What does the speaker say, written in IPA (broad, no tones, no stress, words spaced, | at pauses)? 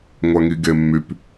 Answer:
ŋʷæŋiɡemːyp